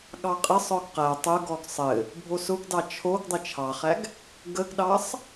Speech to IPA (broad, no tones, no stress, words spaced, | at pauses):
ɠɑqʼɘsˤɔɡ qæ tˤʊɡɔɡ sˤɘ | bʱosʊɡdɑ t͡ʃʰoɡ dˤɘt͡ʃʰɑχæɡ | ɡəɡɗɑsˤ